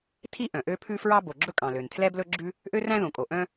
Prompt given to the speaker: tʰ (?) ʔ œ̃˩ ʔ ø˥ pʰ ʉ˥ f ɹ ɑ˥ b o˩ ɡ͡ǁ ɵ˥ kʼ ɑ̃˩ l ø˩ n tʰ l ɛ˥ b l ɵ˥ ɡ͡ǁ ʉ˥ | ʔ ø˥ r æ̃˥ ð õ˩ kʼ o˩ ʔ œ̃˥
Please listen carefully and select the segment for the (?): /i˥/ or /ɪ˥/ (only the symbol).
i˥